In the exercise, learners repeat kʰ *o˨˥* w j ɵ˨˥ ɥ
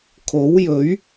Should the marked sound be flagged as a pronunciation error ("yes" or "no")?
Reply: no